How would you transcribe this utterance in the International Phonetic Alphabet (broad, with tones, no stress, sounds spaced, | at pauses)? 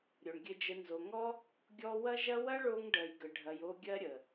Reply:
ɾʲ o˨ ɳ ɡʲ ɘ˧ d͡ʒ ə˧ n z o˨ ŋ ɔ˦ | ɡʲ ɔ˦ w ɐ˦ ʒ ɐ˦ w ɐ˦ ɭ o˧ ŋ ɖ ɜ˨ j ɡ ə˨ ɖʱ ɐ˨ j o˧ ɡʲ ɜ˦ ɾʲ ə˨